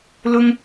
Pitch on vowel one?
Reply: high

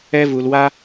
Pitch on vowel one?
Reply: high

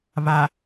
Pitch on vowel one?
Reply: low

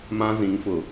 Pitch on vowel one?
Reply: high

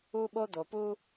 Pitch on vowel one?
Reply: high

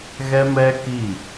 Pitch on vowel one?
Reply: high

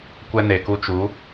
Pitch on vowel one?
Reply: high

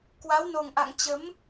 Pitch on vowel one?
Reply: rising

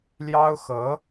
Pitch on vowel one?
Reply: high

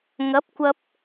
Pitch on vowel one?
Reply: rising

